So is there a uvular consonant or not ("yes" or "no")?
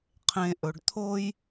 yes